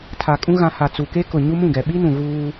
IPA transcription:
tʰa˨kʼũ˦ ɣã˨ ha˨t͡su˨ke˦kʊ˨ ɲu˦mũ˦˨ɡɛ˨ ɓi˦nũ˨ɣuː˦

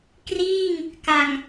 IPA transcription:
kriː˥˩ŋ | ka˨˩ŋ

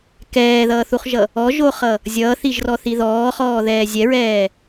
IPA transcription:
kɛːðʌːθuχʒʌ | ɔʒoχʌ | zʲʌːθiʒrɔθi ðɔːχɔːðɛː zʲɛɹɛː

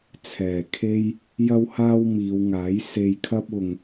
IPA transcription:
t͡sʰɛː˨˩ kʰe˥j | jɐ˥whaː˥wmiː˨˧wŋaː˨˥j se˧jkʰɐ˥p̚ ʊ˨ŋ

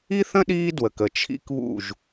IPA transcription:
i˦θə̃˦ ɗiː˦dwə˨kə˨ t͡ʃʰḭ˦kβṵ˦˨ʒ

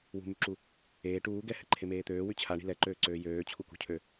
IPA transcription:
wṳmyǁu | eː ʈuː ɡɛhɛǃʰemeː t̪øːwy t͡ɕʰaɳi̤ lɛǃøːǀøː jøːt͡ɕʰukṳcʰø

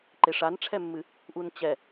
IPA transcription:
ǃeʂanʈ͡ʂʰɛmːɨ | ʔunt͡ɕɛ

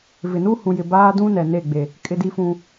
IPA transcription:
vɪ˨ nu˦hũ˨jɪ˨ baː˦dũ˦nɛ˨ ne˦˨ɡ͡be˨ | kʼɪ˦di˦fũ˦

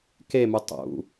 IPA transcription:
kemu tˤṵ

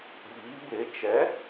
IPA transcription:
ɓiː˨˦be˨˦ t͡ʃɛ˨˦

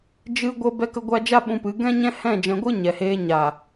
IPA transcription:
d͡ʒɨ˧ɡʷə˧ bɛ˧kə˧ɡʷa˧ d͡ʒa˦ɓũ˧pɨ˨˦ ɡɛ̃˦ɲɛ̃˦ hɛ̃˦˨ d͡ʒɛ̃˧ɡʷɨ˦ɲɛ˨heː˧ ɲa˨

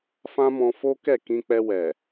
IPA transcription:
fã˦mɔ̃˧fo˦ kɛ˦˨ kĩ˧k͡pɛ˧wɛ˨

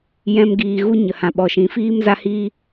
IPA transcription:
jɛ̃˧mɡiː˨ɣu˦ ɲə˨hã˨ɓɔ˨ʃĩ˨˦ fiː˦mza˦hiː˦

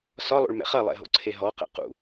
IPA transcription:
sɒlˠo̰ɭmɛ̰ χɐlˠɛ̰ɦo̰ǀʰe ɦɔqɛ̰ qṵ

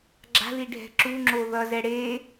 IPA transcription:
ɡ͡ǁa̤ðiɖʱɛ̤ ǁuŋ͡ǁo ðʌzɛ ɽe

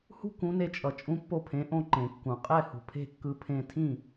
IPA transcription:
hṳ˥ kũ˩˥ne˧t͡ʃʼʌ˩ t͡ʃʼũ˧pːo˧pʰẽ˩˥ ʔõ˧ǃẽ˩kːũ˩ qʼɛ˥˩hṳ˩pʰe̤˥˩kːɯ˧ pʰẽ˧tʰĩ˥˩

